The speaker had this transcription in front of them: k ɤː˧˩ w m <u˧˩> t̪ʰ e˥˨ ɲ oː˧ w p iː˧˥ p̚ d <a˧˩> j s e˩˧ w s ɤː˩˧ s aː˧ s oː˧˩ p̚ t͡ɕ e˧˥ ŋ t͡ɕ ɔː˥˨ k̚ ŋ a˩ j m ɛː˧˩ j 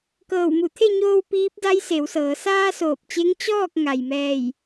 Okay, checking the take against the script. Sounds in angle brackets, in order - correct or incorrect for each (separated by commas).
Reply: correct, incorrect